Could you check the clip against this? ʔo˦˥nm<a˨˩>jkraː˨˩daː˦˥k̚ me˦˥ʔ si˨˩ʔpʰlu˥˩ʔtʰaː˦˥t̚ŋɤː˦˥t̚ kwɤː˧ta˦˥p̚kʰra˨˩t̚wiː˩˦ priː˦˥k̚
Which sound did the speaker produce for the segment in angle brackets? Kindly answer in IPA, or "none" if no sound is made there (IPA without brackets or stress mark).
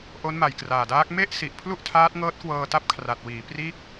a˨˩